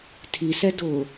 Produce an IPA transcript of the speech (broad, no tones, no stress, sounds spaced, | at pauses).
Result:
tʰ i s ɛ d ʊː